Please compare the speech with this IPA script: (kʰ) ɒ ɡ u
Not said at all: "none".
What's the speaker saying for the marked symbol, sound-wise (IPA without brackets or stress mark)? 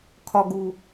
kʰ